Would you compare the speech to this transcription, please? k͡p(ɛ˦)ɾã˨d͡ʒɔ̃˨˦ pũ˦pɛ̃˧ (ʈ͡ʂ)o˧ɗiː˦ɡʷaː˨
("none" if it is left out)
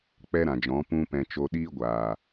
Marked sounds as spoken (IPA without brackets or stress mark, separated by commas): ɛ˦, t͡ʃ